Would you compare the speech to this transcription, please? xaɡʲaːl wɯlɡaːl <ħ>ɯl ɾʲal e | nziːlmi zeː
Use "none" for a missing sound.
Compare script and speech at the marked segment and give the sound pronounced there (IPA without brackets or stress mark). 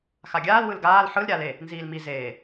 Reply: ħ